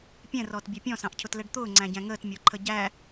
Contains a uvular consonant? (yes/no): no